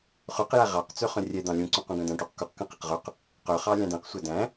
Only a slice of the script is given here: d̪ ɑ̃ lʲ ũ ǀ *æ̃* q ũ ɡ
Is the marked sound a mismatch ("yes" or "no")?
yes